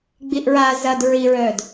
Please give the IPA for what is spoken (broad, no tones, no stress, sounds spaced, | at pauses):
ɡ͡b i ʔ ɹ a z ɐ d ɹ i ɹ œ d